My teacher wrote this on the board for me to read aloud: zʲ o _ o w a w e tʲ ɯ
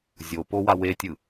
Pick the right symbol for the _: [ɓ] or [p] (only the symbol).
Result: p